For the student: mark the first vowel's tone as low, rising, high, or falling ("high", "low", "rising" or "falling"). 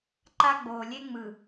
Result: high